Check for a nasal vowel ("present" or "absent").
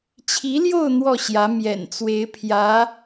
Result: absent